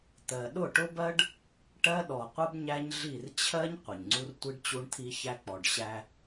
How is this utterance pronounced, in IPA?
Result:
t̪ ɜ˨ ɗ ʊ˦˨ ʈ ʊ˦ b ɜ˦ ɖ | ʈ ɜ˦ ɗ ɔ˨ qʷ ʌ˦ b ɲ æ˦ ɲ ɮ i˦˨ r t͡ɕʰ ɜ˦ ɲ qʷ ʌ˨ ɲ ŋ͡ǀ u˦ r tʷ i˦ ɖ t͡ɕ u˦ ɳ t̪ʰ i˦ ç æ˦ k͡p ɔ˨ ɖ ɕ æ˦

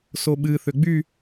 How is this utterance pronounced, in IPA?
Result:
s o ɓ ɨ θ ʏ ɡ͡b y

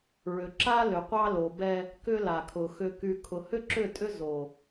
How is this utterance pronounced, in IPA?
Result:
ɹ ʏ˨ ǁ a˦ l ʏ˨ qʷ ɑ˦ l o˨ b ɛ˦ | k ʏ˦ l a˨ kʰ ʊ˨ x ʏ˨ k y˨ kʰ ʊ˨ h ʏ˦ ǁ ʏ˦˨ tʼ ʏ˦ z o˨

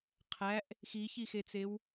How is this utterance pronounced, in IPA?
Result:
qʰ æ ʔ | x i ç i x e t͡s e w

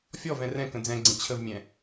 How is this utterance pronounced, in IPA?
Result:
fʲ ɔ v ɛ̃ r ɛ̃ k ə̃ d͡z ɛ̃ ɡ͡ǀ ə̃ t͡ɕʰ ə v mʲ ɛ̃

